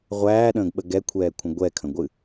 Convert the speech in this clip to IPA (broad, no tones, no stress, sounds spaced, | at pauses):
ʁʷ æː ɗ ə̃ː ɡ ɓ ə ɡ ɛ kʷʰ ɛː kʷʰ ə̃ ɡʷ ɛ kʰ ə̃ ɡʷ ɨ